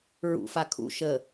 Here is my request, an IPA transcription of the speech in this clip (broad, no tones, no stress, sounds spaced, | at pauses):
ɹ ṵ f a kʰ ṵ ʃ ə